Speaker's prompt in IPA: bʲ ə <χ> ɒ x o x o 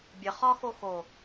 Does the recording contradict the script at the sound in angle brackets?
no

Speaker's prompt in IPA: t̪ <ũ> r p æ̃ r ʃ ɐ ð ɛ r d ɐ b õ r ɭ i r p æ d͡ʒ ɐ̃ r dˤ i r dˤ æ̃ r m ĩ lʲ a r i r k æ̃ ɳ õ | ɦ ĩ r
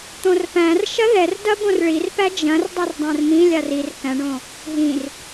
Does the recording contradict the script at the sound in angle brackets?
yes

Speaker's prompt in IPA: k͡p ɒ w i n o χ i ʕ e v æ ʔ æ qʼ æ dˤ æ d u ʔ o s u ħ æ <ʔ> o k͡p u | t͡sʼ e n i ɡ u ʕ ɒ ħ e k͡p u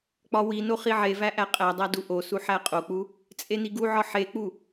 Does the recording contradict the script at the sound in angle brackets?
yes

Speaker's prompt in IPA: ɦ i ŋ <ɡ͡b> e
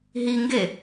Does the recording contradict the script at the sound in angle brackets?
yes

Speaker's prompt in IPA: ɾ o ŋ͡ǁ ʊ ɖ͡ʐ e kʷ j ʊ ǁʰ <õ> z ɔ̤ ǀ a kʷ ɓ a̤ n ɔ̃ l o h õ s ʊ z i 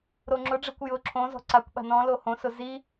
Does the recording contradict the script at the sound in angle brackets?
no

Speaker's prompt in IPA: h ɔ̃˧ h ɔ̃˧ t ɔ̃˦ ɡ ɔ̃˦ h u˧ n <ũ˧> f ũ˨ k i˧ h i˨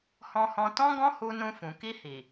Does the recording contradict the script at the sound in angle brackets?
no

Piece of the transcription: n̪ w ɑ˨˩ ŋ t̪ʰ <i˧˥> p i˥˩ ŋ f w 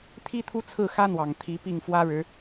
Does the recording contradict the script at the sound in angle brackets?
no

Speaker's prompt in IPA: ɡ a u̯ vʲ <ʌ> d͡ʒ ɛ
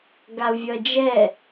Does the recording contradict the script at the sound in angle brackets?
no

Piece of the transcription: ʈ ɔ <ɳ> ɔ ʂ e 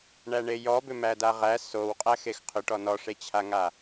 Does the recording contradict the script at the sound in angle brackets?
yes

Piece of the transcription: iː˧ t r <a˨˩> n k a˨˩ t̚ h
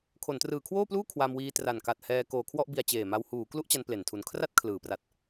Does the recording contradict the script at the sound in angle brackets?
no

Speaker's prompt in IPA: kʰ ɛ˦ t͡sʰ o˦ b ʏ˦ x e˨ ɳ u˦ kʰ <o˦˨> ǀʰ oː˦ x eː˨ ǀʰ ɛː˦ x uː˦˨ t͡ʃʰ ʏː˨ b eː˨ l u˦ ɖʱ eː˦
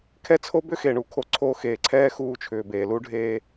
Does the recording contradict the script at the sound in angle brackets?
yes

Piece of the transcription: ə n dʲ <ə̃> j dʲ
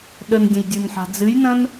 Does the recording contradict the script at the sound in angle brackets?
no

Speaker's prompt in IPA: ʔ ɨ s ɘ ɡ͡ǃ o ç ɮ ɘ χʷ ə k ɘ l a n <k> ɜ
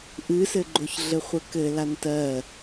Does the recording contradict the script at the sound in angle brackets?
yes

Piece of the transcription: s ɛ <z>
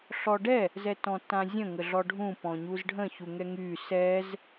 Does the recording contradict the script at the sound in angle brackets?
no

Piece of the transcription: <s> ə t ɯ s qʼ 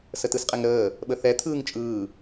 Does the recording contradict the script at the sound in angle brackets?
no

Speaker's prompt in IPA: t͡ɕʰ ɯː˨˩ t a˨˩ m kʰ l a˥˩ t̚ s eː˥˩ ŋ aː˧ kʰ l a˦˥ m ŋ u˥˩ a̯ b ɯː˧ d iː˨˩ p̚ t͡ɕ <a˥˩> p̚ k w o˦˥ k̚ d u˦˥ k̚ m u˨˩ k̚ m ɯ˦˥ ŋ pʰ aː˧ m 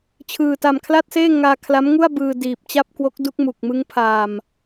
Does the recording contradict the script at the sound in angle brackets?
no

